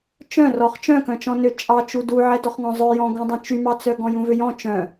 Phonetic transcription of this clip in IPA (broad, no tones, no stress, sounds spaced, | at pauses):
t͡ʃ œ̃ r ɔ χ t͡ʃ œ̃ k œ̃ t͡ʃ ɔ̃ n ø t͡ʃʼ ɑ t͡ʃ u d u ʕ ɛ d ɔ χ ŋ ɔ̃ zˤ œ j ɔ̃ ɡ ũ dˤ œ̃ t͡ʃ y m ɑ t͡s œ ɡ ɔ̃ j ũ v ø j ɔ̃ t͡ʃ œ̃